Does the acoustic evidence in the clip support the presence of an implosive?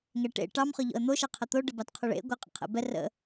no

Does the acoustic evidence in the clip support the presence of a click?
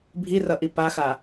no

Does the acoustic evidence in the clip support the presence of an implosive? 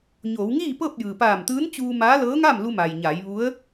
no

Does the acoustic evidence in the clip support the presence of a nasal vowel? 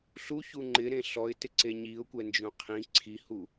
yes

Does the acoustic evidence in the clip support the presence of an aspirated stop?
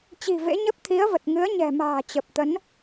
yes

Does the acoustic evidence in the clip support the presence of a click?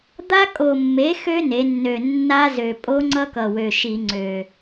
yes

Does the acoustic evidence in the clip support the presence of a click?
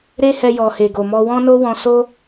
no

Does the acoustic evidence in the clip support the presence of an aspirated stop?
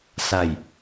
no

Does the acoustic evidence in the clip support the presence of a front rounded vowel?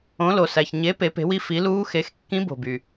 yes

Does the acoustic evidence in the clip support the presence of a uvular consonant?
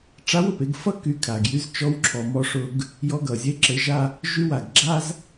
no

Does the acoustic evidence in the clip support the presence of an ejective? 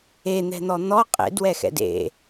yes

